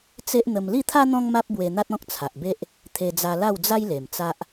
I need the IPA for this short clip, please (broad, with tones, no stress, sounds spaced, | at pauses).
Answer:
t͡s e˦ ʔ n̪ ə˧ m l i˥˧ t̪ʰ a˦ n̪ ɔ̃˦ ŋ m a˦ p̚ b w e˧ n̪ a˦ t̚ ɔ̃˦ k̚ t͡sʰ a˨ ʔ b e˦ ʔ | t̪ʰ e˧ d͡z a˧ l a˥˧ w d͡z a˦ j l e˨˩ m t͡s a˦ ʔ